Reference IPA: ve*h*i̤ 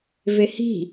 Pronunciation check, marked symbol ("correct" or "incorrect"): correct